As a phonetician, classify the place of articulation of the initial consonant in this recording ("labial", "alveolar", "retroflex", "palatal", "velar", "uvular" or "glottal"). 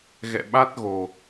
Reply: velar